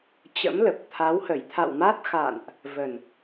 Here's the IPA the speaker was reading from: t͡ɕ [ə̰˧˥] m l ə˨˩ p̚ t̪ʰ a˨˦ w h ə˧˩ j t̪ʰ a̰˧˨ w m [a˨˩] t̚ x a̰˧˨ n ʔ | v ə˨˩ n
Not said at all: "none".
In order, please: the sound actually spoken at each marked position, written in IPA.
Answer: ə̰˧˥, a˦˥

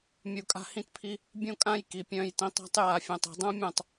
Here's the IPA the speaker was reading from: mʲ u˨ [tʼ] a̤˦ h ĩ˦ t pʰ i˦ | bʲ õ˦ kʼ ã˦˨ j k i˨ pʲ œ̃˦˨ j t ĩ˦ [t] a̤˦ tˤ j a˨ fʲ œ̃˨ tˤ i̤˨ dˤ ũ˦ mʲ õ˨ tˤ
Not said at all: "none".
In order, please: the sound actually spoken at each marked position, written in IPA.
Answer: kʼ, tˤ

